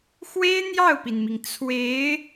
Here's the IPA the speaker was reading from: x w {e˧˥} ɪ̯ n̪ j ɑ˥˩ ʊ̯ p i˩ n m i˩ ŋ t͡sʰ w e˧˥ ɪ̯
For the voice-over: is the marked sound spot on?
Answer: no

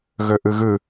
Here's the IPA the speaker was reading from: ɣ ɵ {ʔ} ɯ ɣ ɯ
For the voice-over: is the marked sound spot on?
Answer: yes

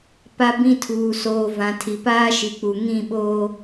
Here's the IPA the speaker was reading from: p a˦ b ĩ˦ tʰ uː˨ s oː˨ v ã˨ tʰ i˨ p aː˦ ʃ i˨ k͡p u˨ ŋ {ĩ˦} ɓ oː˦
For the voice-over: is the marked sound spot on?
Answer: no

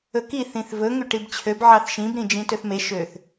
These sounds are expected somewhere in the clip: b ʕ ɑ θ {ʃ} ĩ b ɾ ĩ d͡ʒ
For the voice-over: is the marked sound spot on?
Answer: yes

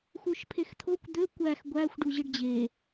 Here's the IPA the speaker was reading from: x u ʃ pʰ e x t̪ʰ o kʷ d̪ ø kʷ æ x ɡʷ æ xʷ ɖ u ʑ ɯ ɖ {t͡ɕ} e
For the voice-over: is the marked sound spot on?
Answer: no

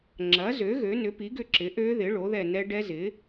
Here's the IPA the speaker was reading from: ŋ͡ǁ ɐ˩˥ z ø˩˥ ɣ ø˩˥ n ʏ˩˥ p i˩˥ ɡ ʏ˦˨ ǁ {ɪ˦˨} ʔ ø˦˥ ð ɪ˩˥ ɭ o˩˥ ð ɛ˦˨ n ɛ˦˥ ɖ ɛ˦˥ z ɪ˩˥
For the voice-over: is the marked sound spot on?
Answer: no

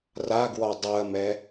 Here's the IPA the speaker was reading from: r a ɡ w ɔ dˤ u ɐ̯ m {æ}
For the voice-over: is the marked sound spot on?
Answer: no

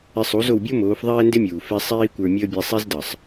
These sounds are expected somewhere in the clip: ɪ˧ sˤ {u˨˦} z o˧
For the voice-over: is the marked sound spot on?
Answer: yes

